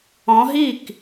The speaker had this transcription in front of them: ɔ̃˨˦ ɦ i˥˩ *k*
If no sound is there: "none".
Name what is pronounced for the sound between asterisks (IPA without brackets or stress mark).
k